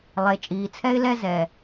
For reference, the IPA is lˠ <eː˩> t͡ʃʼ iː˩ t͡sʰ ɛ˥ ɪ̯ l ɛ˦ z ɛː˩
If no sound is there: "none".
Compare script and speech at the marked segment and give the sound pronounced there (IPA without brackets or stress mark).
e˩